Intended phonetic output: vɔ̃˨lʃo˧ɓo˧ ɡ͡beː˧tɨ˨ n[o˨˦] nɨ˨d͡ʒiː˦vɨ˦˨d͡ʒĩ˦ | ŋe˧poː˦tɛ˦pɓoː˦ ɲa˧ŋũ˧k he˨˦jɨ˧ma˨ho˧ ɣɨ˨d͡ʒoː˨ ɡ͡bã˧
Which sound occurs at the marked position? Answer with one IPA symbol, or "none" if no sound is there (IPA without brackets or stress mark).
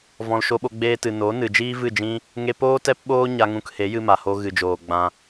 o˨˦